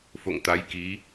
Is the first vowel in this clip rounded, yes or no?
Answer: yes